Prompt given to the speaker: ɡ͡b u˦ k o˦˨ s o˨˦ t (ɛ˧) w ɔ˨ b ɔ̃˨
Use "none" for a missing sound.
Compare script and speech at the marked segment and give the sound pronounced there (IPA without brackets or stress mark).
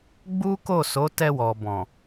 ɛ˧